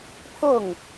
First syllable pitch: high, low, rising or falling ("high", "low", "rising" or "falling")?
falling